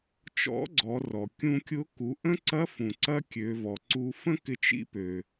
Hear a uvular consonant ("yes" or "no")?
no